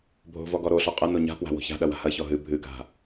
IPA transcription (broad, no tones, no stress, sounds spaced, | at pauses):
bʱ o̤ v ɔ ɡ ɔ ɾ o ɬ ɔ qʼ ɐ n o ɲ a̤ p w a̤ w o̤ ç a̤ ɗ ɐ w a̤ h ɐ ç ɔ ɦ ɨ bʱ ɨ ɡʱ a̤